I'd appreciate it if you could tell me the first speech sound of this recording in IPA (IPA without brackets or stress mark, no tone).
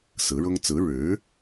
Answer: s